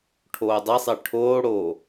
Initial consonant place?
retroflex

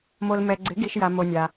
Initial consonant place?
labial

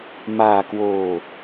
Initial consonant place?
labial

